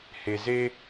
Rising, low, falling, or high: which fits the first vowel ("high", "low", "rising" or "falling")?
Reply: low